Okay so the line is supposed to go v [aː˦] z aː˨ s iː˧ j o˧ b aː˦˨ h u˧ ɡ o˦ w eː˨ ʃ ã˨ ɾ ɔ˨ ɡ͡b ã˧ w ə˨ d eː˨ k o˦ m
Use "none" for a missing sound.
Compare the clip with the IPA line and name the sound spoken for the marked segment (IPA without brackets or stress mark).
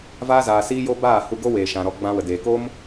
aː˧